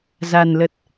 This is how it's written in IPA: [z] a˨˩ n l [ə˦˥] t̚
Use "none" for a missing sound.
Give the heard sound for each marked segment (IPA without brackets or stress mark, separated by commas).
z, ə˨˩